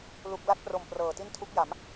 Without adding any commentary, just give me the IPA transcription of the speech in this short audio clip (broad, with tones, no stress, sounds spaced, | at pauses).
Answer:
l u˥˩ k̚ l a˦˥ t̚ p r o˨˩ m p r ɤː˨˩ t i˥˩ n tʰ u˦˥ k̚ j a˩˦ m